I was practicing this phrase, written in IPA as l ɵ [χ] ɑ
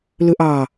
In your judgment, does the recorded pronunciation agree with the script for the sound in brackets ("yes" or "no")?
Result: no